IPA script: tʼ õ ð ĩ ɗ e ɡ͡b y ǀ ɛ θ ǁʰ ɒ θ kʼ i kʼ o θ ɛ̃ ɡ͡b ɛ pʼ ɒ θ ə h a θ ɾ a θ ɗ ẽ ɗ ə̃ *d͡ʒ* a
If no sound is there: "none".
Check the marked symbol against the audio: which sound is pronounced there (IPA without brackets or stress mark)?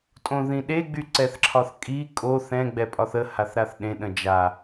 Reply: d͡ʒ